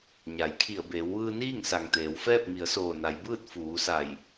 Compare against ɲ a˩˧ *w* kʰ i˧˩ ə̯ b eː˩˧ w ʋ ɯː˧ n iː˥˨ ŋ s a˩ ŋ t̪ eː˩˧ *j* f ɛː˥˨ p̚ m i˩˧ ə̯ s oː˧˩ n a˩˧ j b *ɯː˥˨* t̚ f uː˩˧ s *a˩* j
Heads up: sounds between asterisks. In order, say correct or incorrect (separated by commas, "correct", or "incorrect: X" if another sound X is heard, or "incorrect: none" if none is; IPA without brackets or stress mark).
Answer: incorrect: j, incorrect: w, correct, incorrect: a˧˩